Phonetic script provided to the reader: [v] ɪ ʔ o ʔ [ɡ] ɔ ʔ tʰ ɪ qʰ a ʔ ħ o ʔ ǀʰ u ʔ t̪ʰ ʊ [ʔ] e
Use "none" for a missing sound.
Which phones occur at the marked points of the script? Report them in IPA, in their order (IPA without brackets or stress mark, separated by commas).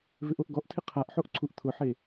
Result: v, ɡ, ħ